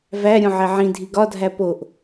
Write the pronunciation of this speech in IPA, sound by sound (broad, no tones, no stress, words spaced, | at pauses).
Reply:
væɾʲõ ʕeʕĩdʱi ɡɒdʱæ poʔ